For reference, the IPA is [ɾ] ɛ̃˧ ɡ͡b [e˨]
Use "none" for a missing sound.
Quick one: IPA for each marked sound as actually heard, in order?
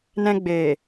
n, e˨

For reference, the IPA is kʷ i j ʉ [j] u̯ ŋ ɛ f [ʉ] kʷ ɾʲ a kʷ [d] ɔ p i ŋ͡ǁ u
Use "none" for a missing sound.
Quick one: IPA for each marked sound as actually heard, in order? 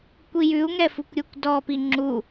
none, u, d

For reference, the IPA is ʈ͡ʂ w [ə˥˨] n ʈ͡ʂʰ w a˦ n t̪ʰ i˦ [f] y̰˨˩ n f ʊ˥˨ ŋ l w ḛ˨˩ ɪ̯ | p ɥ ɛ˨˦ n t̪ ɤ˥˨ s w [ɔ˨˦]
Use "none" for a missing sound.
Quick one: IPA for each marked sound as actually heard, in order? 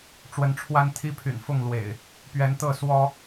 ə˨˦, pʰ, ɔ˦

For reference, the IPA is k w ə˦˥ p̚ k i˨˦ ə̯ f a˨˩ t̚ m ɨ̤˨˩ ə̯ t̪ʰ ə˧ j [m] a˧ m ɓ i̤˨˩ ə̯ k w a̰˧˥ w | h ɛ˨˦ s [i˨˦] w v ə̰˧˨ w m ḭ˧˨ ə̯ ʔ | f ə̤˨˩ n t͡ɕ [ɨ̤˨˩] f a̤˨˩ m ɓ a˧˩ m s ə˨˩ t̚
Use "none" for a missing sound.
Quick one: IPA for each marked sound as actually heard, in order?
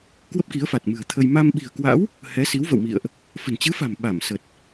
m, i˨˦, ɨ˨˦

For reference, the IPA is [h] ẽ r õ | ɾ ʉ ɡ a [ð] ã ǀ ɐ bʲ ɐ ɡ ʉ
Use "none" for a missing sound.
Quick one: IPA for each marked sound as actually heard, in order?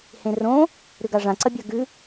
h, ʐ

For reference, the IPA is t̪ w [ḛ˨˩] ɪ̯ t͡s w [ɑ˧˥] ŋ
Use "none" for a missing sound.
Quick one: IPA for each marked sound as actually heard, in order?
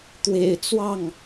ḛ˨˩, ɑ˥˩

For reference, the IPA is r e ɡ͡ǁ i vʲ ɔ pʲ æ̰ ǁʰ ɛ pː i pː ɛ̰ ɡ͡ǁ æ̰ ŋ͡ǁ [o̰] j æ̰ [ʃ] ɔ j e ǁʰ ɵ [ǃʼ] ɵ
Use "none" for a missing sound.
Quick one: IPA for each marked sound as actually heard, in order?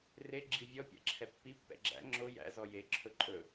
o, z, ǃʼ

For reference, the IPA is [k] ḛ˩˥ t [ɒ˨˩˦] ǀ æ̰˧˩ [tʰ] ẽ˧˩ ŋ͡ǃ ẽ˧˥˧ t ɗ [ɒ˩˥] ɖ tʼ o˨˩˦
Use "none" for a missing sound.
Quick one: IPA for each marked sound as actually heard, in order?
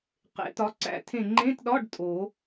q, ɒ˩˥, tʰ, ɒ˧˥˧

